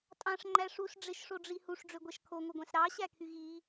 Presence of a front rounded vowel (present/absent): present